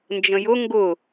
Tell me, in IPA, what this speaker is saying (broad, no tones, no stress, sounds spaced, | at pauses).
n d͡ʒ ə̃ j ʊ ŋ ɡ ʊ